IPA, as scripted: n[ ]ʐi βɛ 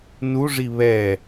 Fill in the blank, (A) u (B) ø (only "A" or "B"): A